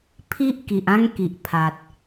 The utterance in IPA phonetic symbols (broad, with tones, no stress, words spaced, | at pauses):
pʰi˦ʔki˨ʔã˦ŋ ki˨ʔpʰa˨t̚